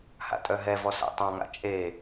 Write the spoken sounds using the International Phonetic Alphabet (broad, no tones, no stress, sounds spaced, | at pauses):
h a̰ tʼ œ ɦ ɛ v ɔ s a̰ tˤ ɑ̃ ŋ a̰ t͡ʃʼ e